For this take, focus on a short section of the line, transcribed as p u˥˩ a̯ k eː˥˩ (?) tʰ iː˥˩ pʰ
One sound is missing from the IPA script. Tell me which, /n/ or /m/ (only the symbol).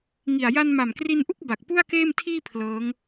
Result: m